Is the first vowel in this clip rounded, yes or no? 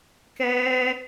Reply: no